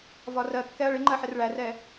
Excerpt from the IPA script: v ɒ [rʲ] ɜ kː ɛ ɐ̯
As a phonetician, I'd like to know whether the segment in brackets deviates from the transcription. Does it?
yes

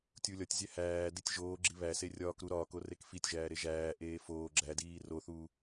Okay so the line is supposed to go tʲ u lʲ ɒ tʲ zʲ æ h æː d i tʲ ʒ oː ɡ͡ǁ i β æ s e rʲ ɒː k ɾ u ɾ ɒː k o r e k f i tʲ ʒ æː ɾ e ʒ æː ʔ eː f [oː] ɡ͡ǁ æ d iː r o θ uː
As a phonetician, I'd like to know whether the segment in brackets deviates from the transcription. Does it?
no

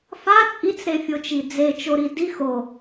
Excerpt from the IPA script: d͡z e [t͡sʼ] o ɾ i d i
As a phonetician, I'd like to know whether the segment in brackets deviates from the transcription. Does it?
yes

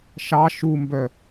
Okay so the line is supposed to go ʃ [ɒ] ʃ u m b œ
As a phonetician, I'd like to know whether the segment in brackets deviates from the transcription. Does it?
yes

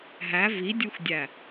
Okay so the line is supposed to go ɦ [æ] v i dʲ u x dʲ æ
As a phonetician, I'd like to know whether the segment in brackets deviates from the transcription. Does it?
no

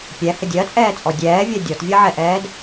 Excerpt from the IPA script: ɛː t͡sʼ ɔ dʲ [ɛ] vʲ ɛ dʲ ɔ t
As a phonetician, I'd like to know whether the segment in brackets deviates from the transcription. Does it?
yes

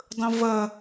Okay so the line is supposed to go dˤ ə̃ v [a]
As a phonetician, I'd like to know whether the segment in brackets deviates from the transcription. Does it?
yes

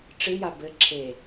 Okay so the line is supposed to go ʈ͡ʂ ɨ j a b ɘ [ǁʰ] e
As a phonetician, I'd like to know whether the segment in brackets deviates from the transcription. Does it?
no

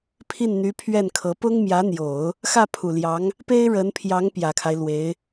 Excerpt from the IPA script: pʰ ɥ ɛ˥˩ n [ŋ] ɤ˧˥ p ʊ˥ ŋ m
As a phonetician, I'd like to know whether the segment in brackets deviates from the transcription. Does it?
yes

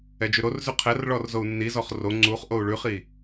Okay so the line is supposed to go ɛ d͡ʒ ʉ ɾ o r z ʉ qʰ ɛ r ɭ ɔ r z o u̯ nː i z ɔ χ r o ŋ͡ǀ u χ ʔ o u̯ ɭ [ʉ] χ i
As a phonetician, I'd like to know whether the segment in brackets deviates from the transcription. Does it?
no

